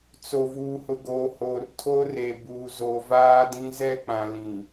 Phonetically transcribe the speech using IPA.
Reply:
t͡s o˨ v uː˨ h ʊ˨ ɡ oː˨ h oː˨ r tʰ o˦ r e˨ b uː˨ z oː˨ v aː˦ d ĩ˦ z ɛ˦˨ k͡p ã˨ l ĩ˨

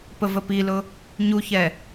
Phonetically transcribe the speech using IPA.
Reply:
p ə v ə p i l ʊ | ɲ u ç ɛ

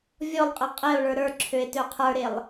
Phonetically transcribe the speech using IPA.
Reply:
vʲ ɔ lˠ qʼ ɐ qʼ e o̯ ɭ ə˞ ɾ ə˞ ǁʰ ø e̯ t ø qʰ ə˞ ɾ e lˠ

